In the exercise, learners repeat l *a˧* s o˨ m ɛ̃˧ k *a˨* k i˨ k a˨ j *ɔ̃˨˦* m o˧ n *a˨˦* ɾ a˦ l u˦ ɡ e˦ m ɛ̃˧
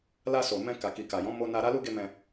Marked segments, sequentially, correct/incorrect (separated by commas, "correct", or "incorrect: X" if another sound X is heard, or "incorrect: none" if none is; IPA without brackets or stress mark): correct, correct, correct, incorrect: a˧